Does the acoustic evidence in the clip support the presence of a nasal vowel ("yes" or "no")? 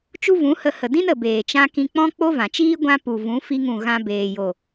yes